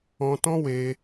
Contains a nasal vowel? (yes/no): yes